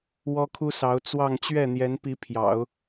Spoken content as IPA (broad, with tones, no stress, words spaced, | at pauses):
wɔ˥kʰu˥sɑ˧˥ʊ̯ t͡swɑ˥˧ŋ t͡ɕɥɛ˥˩n̪jɛ˧˥n pi˧˥pʰjɑ̰˨˩˦ʊ̯